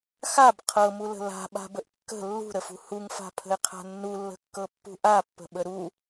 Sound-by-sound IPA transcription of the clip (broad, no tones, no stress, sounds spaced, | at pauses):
x a b qʰ ɤ m u l ə̤ l a̤ ɓ a̤ b ə ʔ kː ə̤ lː ṳ ɾ ə f ṳ h u ŋ f a̤ pʰ ə̤ ɪ̯ qʰ a̤ nː u lː ə̤ kː ɤ pː ṳ ʔ a pː ə̤ ɓ ə ɾ u